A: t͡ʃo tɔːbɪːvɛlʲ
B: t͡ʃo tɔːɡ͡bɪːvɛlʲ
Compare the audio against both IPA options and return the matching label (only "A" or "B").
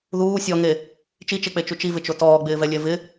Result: B